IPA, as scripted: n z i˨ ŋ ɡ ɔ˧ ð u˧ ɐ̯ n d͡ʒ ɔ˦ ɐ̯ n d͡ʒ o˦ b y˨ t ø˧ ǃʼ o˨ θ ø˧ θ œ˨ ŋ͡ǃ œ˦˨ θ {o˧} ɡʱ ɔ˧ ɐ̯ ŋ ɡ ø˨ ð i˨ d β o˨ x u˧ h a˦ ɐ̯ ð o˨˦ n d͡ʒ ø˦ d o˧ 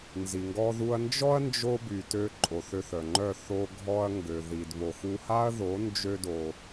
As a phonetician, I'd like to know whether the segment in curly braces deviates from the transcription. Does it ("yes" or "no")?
no